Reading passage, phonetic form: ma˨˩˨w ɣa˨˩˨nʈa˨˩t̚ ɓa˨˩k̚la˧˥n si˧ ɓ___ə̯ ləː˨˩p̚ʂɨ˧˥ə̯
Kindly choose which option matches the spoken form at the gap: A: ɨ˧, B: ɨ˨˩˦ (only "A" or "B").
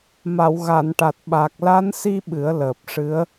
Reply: B